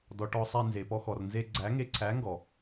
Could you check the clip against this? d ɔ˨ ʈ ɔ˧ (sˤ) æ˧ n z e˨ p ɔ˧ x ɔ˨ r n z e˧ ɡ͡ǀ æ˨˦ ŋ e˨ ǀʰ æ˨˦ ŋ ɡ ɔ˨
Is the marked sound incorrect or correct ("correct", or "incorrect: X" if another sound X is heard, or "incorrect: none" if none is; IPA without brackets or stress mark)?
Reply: correct